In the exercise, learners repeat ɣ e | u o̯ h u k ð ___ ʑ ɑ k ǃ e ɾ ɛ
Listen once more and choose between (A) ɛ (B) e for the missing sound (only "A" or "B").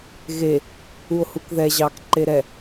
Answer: A